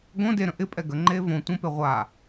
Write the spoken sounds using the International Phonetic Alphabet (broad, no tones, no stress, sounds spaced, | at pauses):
ɡ õ d e ɾ ə̃ ʔ ɪ pʼ ɛ ɡ ə ŋ͡ǃ eː v õ tʷ ə̃ p e ʁʷ a